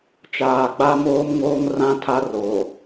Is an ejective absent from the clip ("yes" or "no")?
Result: yes